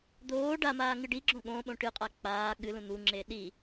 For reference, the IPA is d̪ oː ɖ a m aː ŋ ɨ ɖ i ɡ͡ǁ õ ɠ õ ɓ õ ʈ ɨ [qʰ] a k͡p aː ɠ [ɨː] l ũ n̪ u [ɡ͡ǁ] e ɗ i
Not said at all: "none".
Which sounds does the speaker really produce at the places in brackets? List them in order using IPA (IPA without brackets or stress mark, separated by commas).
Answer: qʼ, ɨ, ŋ͡ǁ